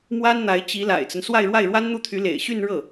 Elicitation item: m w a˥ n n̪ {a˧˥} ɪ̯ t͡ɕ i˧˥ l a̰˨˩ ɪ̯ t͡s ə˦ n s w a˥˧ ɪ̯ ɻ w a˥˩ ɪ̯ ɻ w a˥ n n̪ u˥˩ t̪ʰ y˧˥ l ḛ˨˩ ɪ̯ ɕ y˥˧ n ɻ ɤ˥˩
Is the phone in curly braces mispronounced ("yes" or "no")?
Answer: no